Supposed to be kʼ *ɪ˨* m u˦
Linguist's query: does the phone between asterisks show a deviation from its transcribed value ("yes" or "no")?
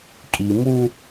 yes